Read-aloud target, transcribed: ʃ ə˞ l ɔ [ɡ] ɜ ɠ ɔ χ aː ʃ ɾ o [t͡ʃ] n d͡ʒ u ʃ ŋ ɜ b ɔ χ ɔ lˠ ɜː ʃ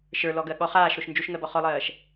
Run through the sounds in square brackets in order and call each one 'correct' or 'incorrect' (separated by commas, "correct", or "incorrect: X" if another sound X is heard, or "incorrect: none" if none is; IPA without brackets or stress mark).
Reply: correct, incorrect: ʃ